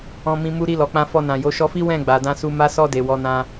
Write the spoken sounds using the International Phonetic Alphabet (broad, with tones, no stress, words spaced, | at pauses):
ɔ̃˧mĩ˧ mu˧ɾi˧lɔ˨k͡pã˧ fɔ˧nã˨ jo˨˦ ʃɔ˧fi˦ wɛ̃˦˨ɡ͡ba˨dã˧ su˧ma˦ sɔ˧ de˨wɔ˨˦nã˧